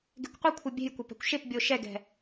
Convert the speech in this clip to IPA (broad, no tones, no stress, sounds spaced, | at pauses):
ɡ e̤ kʷ qʷ e kʷʰ ɤ bʲ e̤ j kʷ ɤ p ɛ̤ kʷ ʃ e p bʲ o ʃ ɛ ɡ ɛ̤